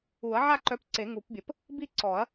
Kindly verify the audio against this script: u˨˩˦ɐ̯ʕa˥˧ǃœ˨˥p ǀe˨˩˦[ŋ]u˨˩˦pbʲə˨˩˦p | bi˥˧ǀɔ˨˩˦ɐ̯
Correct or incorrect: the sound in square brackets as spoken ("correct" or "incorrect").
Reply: correct